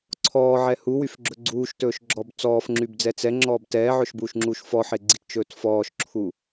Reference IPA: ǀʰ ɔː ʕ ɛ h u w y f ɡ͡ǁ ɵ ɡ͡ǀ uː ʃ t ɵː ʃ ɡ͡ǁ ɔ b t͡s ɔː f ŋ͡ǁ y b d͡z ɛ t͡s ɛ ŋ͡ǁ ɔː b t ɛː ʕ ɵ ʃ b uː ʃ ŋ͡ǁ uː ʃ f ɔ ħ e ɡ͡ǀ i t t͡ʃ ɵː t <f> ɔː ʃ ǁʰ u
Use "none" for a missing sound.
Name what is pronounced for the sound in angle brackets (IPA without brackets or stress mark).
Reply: f